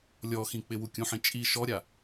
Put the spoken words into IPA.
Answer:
lʲɔxĩ k͡pɪwukʲũħĩ t͡ʃʼi ʃɔɾʲa

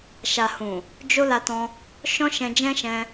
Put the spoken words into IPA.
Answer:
ʃa˨hũ˨ | d͡ʒo˧ la˧tɔ̃˧ | ʃɔ̃˦ʃɛ̃˧d͡ʒɛ̃˦ʃɛ̃˧

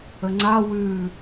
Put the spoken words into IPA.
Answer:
əŋ͡ǀa wʉ

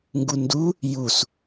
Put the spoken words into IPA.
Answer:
ŋɡundu | jus

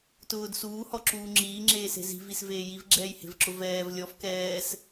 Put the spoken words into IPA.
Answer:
tʊːd suːhɔǁuː ŋ͡ǁiːŋ͡ǁeːse̤ zi̤visveː jivɡ͡ǁɛːjhe̤vǁʊ vɛːv lʲɔf kɛːs

